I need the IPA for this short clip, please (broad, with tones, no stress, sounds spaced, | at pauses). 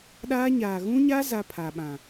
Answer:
ɗ aː˦ ɲ aː˨ ɣ ũ˦ ɲ a˦ z a˦ pʰ a˨ ɓ ã˨